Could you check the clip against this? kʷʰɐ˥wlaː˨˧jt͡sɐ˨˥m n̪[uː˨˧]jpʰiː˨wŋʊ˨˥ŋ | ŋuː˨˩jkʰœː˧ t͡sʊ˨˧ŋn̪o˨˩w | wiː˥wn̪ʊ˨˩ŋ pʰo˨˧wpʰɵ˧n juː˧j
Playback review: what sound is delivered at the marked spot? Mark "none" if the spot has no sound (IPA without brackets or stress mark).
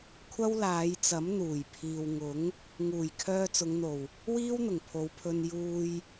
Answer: uː˨˩